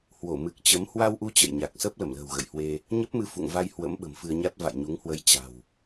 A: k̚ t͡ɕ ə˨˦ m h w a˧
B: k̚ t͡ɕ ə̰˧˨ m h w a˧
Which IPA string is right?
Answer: A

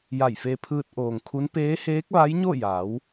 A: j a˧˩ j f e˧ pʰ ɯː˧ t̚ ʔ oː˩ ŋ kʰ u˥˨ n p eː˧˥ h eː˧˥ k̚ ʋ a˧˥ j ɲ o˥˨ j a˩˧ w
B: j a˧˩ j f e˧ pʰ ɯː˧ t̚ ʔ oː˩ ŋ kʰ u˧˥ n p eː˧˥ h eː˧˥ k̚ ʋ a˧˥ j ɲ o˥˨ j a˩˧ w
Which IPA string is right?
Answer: B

